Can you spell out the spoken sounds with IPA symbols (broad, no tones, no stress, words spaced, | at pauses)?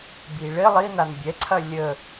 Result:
biɭɪ lˠi nanbʲɛǀʰɐ lʲə